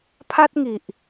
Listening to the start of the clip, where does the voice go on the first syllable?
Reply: high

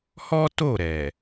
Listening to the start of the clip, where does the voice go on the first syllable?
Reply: high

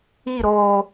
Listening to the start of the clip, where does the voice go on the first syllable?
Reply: falling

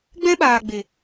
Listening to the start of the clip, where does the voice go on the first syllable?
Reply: high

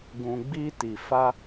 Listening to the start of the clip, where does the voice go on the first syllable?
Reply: low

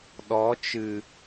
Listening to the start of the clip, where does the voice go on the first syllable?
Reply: rising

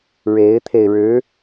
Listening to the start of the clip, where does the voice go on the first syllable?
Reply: rising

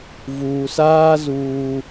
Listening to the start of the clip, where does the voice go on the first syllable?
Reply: low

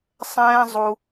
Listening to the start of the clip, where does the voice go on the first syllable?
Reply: high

